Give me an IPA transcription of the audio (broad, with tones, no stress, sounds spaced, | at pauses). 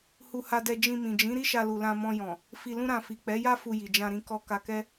h u˧ h a˧ d ɛ˧ d͡ʒ ĩ˧ m ĩ˨ d͡ʒ ĩ˨˦ ɾ i˦ ʃ a˧ l u˨ l ã˧ m ɔ̃˧ j ɔ̃˨ | f i˧ l ũ˦ ɾ ã˧ f i˨ k͡p ɛ˨˦ j a˦ f u˧ j i˨ d͡ʒ ã˧ ɾ ĩ˧ k ɔ˧ k a˧ k ɛ˦